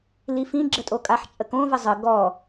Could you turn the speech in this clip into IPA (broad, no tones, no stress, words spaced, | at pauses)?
lifĩ ɡ͡ǁətʼokʼaħ t͡ʃʼəkõ vəzˤə ɡɔ